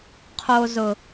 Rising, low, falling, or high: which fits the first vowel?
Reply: low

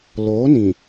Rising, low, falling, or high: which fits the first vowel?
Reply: rising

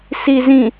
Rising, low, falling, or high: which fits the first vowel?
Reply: low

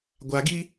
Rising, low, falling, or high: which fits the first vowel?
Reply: low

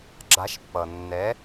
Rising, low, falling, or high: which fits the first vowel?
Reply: rising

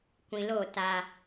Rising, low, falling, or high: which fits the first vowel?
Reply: low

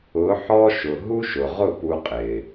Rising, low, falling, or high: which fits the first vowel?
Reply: rising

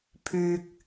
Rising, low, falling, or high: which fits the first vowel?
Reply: high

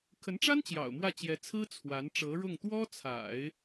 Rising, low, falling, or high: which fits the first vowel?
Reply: rising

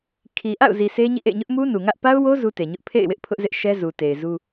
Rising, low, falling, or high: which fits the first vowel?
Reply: low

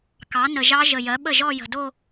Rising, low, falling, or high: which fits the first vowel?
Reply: rising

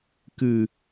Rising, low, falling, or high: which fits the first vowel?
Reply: high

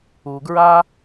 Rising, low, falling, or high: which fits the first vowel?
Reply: low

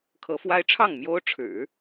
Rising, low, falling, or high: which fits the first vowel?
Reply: rising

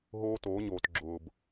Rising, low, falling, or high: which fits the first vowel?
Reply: high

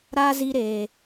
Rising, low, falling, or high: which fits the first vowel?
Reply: high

